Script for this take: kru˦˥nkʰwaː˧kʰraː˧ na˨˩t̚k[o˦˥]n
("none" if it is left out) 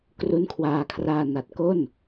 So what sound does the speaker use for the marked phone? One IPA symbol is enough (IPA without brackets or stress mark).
o˥˩